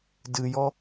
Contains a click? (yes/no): no